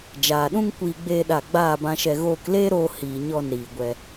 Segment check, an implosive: present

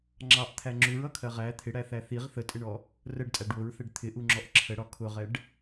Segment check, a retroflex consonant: present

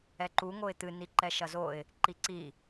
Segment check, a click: present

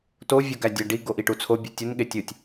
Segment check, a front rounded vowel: present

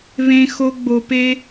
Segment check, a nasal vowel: present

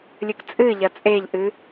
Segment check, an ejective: present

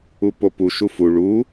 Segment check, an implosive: absent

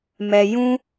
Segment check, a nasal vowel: present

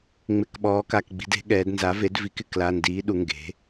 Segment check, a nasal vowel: absent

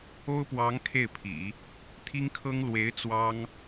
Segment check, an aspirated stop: present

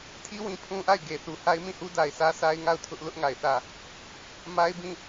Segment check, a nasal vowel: present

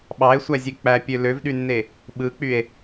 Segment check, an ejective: absent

